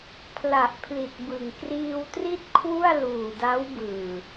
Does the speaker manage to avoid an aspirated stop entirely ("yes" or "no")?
no